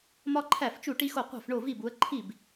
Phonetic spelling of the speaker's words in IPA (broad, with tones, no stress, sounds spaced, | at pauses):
m ɒ˥ ǃʰ æ˥˩ f t͡ʃ u˥˩ ʈ i˥ x o˥˩ qʷ æ̤˥˩ f ɳ o˥˩ v i˥˩ b u˨˦ ə̯ ǃʰ i˥˩ b